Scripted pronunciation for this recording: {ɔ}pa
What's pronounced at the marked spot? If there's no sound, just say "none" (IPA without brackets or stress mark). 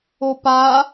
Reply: o